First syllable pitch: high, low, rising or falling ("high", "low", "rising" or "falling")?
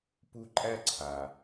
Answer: high